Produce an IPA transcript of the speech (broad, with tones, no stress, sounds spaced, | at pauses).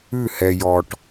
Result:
ʉ˦˨ h ɛ˨ j ɔ˨ ʈ